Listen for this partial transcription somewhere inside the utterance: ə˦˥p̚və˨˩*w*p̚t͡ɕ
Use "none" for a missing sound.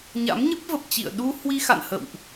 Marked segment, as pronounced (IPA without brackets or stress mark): none